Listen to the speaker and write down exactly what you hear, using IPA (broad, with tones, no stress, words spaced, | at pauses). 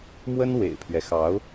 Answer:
mwə˥n wḛ˨˩ɪ̯pʰɥɛ˦xɑ˧˥ʊ̯